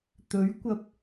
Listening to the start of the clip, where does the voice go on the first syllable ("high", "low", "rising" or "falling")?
rising